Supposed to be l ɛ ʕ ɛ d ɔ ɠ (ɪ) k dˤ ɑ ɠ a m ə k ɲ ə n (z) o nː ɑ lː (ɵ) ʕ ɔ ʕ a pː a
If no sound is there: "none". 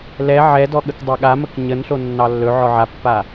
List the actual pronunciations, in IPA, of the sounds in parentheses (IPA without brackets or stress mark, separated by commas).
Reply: ə, ɬ, ɵ